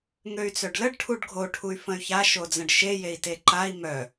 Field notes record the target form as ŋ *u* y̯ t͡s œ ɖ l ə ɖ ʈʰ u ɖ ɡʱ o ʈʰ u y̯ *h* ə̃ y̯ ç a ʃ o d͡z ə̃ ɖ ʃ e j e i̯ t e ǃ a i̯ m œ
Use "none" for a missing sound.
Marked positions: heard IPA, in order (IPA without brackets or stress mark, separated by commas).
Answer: ø, f